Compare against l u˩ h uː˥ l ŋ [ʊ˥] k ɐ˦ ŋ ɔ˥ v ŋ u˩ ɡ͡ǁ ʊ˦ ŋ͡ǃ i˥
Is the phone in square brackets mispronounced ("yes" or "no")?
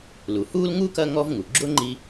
yes